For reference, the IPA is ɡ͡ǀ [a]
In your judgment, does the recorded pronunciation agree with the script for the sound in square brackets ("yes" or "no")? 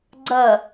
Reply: no